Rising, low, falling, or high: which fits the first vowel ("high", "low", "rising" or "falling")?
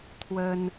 high